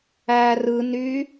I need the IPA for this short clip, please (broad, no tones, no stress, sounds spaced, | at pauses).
æ r ɯ n y